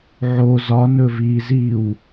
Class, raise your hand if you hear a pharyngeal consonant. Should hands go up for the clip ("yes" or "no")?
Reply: yes